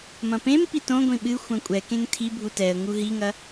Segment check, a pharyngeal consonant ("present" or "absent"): absent